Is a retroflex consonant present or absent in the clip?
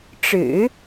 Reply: present